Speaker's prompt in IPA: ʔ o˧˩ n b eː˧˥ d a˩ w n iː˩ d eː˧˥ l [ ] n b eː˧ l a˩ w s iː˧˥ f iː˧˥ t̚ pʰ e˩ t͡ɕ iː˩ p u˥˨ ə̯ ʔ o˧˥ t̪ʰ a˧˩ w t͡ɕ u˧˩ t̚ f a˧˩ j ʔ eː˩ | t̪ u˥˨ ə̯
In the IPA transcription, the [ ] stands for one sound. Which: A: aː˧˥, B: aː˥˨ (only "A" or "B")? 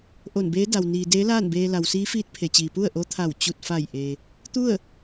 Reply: B